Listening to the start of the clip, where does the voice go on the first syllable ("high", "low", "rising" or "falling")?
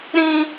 high